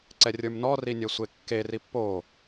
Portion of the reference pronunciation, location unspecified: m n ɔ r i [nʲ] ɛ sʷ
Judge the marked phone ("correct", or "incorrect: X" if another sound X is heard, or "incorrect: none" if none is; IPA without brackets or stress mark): correct